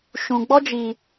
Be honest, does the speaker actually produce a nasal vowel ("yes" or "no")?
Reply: yes